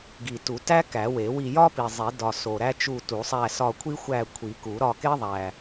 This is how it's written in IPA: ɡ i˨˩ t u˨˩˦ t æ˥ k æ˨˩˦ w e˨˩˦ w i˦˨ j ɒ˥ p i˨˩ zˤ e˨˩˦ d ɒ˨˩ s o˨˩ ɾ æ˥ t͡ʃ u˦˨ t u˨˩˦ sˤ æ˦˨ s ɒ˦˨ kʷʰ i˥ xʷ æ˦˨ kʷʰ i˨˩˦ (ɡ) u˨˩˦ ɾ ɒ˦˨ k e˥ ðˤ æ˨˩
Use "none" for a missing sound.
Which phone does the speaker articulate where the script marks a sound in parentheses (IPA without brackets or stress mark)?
k